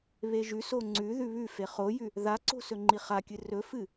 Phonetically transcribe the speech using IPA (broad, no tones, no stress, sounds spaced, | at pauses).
β e ʒ ʉ s o ŋ͡ǀ ʉ ð ʉ β ʉ f e χ o j ʉ | ð a ǀ o̤ s ɵ ŋ͡ǃ i χ a kʲ ɨ r ɵ f ɨ